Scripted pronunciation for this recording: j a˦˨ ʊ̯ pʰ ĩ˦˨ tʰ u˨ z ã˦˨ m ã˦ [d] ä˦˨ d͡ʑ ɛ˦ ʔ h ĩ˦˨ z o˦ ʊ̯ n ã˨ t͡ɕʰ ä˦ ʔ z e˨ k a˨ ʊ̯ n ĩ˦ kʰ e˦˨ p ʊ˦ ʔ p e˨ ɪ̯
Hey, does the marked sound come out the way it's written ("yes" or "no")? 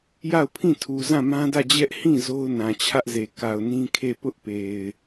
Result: yes